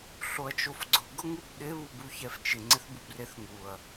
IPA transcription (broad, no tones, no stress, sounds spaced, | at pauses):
ɬ o ɐ̯ t͡ʃ o f ɡ͡ǀ ʊ ɡ ʊ ŋ u b ɗ ɪ β u b u ç ɛ f t͡ʃ ɪ ŋ͡ǀ ɪ θ b u b r e θ ŋ u ɐ̯